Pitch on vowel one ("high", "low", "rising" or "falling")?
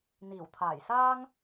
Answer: low